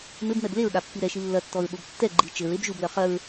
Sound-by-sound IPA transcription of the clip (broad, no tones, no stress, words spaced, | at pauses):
mɘbmɛb leɹɠapːi ɾɛʃi lːɐtːɔɹɓob tːɛ ɡ͡ǃi t͡ʃɘɹeb ʒublɐ χɐɹ